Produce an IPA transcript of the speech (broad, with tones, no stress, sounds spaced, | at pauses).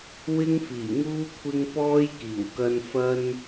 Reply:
w ɪ˧ ŋ f iː˨˩ ŋ uː˧ kʷʰ ɪ˧ ŋ p ɔː˧ j k iː˨˩ w k ɐ˧ n f ɐ˥ n